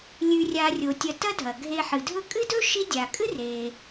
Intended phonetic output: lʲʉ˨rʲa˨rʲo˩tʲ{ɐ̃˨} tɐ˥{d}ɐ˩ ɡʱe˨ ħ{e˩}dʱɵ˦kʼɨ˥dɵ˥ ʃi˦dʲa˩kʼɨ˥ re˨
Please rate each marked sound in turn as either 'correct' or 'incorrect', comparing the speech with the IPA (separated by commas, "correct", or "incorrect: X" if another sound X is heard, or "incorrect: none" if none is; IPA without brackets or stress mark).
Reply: incorrect: ɐ˨, incorrect: dʱ, incorrect: ɨ˩